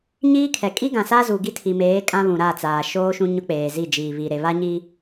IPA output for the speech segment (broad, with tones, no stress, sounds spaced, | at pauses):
ɲ iː˦ kʰ ɛ˨ kʼ i˦ ɡ ã˨ s a˦ z u˨ ɡ i˦ tʰ i˨ m eː˨˦ kʼ ã˦ β ũ˨ ɾ a˦˨ t͡s aː˨ ʃ oː˦ ʃ ũ˦ ɲ ʊ˦ k͡p eː˨ z i˦˨ d͡ʒ iː˨ β i˨ ɾ e˨ β a˦ ɲ i˦